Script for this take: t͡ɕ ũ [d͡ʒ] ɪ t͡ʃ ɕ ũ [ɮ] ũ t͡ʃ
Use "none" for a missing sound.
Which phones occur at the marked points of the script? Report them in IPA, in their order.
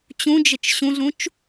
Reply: d͡ʒ, ɮ

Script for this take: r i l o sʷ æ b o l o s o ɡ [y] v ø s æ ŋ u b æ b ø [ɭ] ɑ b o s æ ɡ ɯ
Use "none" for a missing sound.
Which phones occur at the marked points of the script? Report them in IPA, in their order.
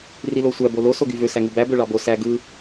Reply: y, ɭ

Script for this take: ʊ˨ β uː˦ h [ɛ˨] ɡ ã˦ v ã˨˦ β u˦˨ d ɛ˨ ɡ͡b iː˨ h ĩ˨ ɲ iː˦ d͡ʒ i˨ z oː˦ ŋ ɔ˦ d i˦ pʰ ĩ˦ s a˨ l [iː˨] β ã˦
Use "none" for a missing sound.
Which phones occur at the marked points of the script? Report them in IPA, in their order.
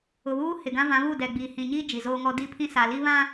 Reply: ɪ˨, iː˦

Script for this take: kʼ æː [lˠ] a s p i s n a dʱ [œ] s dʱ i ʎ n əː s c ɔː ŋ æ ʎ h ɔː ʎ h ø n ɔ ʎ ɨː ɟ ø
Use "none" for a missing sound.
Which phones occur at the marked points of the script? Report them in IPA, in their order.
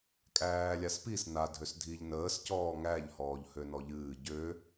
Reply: lʲ, ø

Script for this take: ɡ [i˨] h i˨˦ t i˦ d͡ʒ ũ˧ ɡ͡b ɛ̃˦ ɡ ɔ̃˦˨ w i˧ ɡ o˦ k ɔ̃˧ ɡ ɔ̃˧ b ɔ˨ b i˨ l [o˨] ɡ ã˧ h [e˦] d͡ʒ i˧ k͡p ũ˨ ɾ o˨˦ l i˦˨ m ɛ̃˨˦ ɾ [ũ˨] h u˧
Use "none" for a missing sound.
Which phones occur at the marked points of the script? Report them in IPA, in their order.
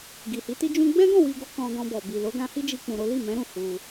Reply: i˨, o˨˦, i˦, ũ˧

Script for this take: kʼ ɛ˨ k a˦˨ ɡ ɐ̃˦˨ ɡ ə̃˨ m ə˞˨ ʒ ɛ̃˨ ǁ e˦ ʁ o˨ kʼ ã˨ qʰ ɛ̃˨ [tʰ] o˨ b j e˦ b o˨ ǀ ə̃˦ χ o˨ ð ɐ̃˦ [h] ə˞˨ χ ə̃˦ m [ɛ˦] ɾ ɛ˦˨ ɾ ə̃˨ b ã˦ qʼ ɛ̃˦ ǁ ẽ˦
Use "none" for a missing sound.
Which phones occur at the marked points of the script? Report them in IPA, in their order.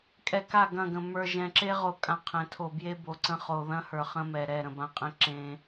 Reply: tʰ, h, ɛ˨

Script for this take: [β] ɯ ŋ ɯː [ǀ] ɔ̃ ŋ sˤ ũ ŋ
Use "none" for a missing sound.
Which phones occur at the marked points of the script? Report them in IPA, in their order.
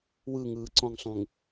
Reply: w, ǀ

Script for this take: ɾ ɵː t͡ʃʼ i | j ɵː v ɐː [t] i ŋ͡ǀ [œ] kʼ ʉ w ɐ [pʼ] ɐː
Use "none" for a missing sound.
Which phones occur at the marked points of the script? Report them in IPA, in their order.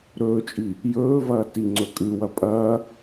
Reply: t, ɵ, pʼ

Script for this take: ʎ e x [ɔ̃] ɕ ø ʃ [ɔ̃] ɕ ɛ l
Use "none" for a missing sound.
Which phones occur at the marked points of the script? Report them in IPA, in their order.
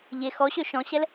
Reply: ɔ, ɔ̃

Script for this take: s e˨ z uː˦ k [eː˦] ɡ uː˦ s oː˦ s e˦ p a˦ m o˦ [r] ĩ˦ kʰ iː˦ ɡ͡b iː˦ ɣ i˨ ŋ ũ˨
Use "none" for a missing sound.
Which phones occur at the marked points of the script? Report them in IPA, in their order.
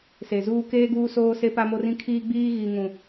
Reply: eː˦, r

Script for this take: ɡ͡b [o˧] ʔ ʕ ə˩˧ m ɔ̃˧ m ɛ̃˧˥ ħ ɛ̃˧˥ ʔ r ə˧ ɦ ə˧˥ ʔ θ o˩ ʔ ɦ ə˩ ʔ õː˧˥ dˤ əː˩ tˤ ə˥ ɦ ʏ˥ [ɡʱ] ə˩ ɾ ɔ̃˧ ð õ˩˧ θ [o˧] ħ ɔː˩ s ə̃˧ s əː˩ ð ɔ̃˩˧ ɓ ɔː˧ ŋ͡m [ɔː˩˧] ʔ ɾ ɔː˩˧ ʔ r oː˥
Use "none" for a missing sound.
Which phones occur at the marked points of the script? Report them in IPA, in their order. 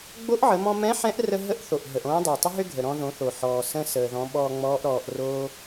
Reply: o˧˥, ɡʱ, o˩, ɔː˧˥

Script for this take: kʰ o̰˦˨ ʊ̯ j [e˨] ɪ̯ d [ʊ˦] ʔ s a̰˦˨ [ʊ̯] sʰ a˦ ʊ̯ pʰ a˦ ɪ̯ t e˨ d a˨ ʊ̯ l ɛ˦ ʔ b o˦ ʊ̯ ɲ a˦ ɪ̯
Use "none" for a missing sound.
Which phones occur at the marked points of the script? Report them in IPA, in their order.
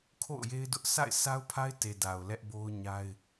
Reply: e˦, ʊ˦, ɪ̯

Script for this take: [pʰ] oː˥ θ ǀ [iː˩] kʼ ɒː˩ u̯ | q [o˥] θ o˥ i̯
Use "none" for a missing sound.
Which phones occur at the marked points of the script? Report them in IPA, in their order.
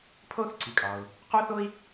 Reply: pʰ, i˩, o˥

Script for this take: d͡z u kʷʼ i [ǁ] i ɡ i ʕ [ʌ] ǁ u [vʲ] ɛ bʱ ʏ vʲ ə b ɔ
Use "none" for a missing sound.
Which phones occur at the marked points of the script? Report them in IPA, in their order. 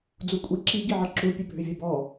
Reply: ǁ, ʌ, pʲ

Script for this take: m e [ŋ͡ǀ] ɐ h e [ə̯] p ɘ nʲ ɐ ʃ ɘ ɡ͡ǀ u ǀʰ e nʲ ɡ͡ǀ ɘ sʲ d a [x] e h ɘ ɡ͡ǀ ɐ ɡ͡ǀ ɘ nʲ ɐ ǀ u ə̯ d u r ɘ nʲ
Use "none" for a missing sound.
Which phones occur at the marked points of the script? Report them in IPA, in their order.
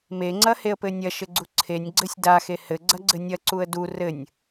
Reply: ŋ͡ǀ, ə̯, x

